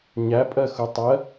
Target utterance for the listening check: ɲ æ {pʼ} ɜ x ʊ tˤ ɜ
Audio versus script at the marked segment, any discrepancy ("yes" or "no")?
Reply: no